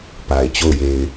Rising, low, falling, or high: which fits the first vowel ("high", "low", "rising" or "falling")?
low